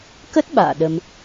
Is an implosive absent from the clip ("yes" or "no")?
no